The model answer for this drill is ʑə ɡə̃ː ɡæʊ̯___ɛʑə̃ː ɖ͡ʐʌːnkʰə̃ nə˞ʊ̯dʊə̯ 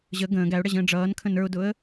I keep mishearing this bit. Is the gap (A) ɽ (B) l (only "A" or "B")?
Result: A